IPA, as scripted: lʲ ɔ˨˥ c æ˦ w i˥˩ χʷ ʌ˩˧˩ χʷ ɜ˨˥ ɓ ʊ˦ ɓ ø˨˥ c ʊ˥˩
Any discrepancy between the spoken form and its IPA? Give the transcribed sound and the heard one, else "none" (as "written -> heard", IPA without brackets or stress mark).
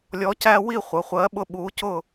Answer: ø˨˥ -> u˨˥